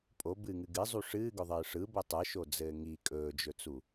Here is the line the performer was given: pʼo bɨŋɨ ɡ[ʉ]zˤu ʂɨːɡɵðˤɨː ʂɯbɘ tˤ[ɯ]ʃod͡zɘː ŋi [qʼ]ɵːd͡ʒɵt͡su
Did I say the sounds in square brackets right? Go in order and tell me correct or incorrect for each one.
incorrect, correct, incorrect

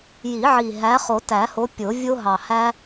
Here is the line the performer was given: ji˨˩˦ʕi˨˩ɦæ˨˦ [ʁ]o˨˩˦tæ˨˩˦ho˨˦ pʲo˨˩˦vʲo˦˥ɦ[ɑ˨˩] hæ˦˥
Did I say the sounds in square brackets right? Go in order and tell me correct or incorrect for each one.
incorrect, correct

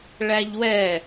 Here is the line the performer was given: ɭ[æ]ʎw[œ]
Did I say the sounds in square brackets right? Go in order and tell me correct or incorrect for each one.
correct, incorrect

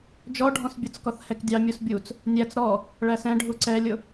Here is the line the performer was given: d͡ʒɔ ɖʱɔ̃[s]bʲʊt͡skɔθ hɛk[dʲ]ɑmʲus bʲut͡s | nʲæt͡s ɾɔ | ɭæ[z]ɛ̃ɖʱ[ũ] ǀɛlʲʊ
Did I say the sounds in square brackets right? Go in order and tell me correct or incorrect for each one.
correct, correct, incorrect, incorrect

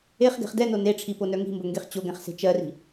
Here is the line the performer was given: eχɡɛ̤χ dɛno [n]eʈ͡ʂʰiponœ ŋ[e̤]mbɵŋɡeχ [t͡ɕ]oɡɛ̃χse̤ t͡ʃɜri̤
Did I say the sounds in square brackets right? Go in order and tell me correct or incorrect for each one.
correct, incorrect, correct

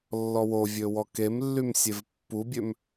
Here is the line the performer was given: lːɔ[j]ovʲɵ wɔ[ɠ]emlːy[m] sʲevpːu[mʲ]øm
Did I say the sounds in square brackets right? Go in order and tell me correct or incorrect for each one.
incorrect, incorrect, correct, incorrect

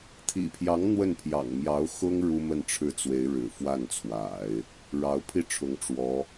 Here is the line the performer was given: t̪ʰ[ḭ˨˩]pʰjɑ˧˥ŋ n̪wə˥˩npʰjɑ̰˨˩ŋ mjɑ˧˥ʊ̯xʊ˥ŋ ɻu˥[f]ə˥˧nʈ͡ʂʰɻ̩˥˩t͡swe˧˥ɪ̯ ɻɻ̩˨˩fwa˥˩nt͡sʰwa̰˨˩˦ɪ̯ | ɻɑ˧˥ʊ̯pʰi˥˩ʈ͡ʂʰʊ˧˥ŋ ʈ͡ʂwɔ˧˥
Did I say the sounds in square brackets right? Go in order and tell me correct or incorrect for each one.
correct, incorrect

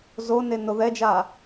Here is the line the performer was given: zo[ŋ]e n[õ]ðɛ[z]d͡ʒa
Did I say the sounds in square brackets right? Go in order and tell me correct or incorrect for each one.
incorrect, incorrect, incorrect

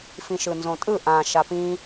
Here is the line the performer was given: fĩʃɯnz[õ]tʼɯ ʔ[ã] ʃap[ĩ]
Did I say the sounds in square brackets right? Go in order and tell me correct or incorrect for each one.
correct, correct, correct

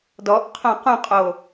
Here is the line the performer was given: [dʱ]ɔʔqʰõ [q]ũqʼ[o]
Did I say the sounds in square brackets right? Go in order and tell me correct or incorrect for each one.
incorrect, correct, correct

